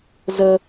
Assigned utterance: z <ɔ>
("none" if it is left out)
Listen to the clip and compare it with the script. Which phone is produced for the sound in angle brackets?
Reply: ə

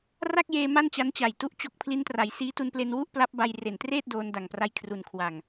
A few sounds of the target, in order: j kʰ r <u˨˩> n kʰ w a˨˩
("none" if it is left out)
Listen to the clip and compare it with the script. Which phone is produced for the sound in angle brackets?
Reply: u˨˩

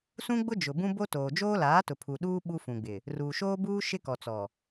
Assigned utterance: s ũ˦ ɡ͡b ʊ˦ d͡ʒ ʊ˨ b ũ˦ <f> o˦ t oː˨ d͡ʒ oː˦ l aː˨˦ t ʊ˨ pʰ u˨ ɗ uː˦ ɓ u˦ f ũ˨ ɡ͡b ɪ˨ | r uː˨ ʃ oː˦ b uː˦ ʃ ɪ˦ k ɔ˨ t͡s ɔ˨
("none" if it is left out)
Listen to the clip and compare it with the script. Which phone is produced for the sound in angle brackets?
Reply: b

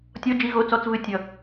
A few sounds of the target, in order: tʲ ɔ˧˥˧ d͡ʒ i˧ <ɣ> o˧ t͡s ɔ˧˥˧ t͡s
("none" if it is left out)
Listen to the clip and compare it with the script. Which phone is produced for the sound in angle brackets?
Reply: ɣ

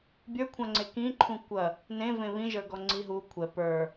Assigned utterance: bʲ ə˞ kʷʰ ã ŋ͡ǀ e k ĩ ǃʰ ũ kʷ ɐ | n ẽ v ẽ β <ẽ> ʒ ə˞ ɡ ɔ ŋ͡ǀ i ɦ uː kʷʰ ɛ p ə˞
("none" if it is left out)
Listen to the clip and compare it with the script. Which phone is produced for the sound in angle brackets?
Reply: ĩ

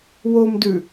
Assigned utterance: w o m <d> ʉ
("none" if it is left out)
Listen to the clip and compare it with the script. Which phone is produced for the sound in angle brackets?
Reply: d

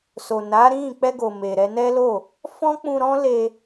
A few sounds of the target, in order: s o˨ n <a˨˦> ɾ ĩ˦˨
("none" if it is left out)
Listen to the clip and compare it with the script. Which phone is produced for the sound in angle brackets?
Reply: a˨˦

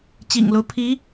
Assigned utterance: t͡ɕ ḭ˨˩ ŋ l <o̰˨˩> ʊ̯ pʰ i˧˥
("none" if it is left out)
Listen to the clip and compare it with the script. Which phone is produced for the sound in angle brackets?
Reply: o˦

